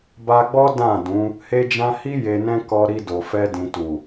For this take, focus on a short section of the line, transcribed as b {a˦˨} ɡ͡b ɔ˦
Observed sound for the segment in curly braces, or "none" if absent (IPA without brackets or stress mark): a˧